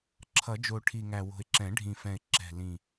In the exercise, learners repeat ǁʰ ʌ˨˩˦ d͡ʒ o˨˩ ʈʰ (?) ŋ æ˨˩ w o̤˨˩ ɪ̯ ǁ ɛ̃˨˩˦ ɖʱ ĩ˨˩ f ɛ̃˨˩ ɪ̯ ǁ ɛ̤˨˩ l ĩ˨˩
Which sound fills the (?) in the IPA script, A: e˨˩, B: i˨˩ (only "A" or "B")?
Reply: B